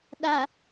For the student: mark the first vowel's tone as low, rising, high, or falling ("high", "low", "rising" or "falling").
low